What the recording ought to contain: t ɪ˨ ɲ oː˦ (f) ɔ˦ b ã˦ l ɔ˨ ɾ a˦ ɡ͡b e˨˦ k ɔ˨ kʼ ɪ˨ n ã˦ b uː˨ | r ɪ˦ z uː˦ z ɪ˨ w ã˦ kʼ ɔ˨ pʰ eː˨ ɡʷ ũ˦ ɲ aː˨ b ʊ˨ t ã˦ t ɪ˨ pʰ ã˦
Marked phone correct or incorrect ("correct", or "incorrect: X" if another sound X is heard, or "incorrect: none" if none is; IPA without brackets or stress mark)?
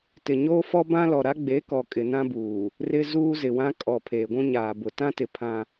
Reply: correct